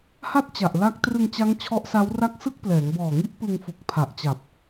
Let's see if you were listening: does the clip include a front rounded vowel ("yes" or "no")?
no